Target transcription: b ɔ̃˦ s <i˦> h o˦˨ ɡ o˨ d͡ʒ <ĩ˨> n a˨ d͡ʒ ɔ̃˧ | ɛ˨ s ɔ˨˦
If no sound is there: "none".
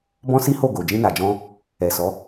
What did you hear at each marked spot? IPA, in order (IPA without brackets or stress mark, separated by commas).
i˦, ĩ˧